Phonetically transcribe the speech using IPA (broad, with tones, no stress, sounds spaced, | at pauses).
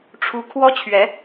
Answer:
ʈ͡ʂʰ u˦ kʰ w ɔ˦ t͡ɕʰ ɥ ɛ˨˦